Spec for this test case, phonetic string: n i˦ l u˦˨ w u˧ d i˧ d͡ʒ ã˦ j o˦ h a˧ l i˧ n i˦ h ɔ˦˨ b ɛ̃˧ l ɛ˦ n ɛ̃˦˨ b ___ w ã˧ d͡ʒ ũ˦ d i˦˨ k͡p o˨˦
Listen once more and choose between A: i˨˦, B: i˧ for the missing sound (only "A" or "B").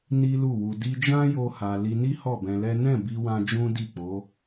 B